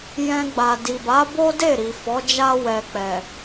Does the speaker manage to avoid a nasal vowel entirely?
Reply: no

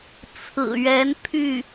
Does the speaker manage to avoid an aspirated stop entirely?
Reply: no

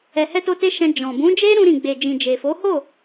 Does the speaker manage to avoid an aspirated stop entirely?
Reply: yes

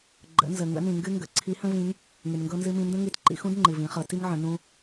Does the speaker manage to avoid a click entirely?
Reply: no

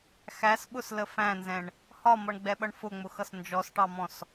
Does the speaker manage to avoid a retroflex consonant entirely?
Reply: no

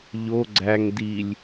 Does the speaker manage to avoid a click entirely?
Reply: no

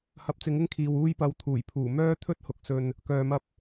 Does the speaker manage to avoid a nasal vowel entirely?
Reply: yes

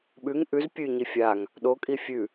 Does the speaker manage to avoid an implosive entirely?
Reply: no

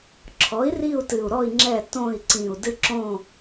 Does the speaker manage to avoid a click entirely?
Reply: no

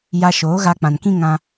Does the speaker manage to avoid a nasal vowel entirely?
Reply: no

